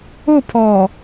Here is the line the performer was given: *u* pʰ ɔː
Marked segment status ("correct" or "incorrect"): incorrect